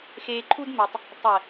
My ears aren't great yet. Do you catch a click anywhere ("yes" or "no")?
yes